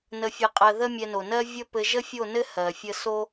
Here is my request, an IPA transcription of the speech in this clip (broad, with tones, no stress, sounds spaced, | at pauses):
n ə˨ fʲ ɘ˨ qʼ ɜ˨ ð ə˦ mʲ ɛ˧ n o˨ n ɜ˦ vʲ ə˦ p ɘ˧ ʒ ə˦ fʲ o˦˨ n ɘ˦ h ɜ˨ fʲ ə˦ s o˦